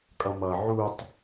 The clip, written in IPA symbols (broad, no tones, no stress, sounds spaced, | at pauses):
kʼ ʌ m ʌ ʕ u tˤ